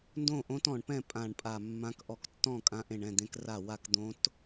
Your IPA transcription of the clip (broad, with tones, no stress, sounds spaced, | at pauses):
n d õ˥˩ ʔ õ˧˥ t ɔ̃˧˩ ɳ p ɛ̃˥˩ pʼ ã˧˩ ɳ pʼ a˧˩ mː ã˧˥ k ʔ ɔ˧˩ k tː ɔ̃˥˩ kʼ ã˧˥ ʔ ẽ˧˩ ɳ ɛ̃˥˩ d̪ ẽ˧˥ k r a˥˩ w a˥˩ k d̪ õ˧˥ t